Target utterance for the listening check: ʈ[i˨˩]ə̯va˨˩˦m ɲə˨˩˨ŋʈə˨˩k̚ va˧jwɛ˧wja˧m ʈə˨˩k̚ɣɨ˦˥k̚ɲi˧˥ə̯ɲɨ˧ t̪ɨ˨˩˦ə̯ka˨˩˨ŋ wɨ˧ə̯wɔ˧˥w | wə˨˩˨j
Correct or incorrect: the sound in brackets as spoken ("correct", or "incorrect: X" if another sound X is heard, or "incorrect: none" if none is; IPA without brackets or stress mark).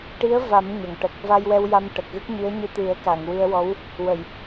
incorrect: i˧˥